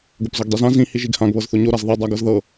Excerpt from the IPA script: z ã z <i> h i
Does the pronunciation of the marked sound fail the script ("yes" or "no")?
yes